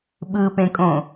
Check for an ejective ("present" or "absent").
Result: present